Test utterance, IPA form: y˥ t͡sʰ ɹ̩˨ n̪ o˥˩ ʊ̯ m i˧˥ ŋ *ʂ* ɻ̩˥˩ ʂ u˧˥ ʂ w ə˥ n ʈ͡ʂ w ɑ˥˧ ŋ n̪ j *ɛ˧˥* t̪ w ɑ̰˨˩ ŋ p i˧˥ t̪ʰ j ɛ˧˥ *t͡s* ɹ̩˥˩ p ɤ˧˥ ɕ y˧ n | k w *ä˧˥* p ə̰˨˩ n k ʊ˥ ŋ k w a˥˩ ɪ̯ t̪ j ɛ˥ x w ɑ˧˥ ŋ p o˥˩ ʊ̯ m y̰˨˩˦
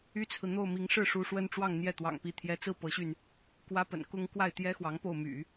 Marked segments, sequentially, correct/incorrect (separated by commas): correct, incorrect, correct, incorrect